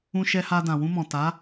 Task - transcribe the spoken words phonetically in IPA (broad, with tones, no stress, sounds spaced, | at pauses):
ũ˧ ʃ ɛ˧ h a˧ d ã˨ w ũ˧ m ɔ̃˨ t a˨˦